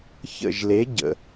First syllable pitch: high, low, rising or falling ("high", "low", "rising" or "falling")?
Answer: falling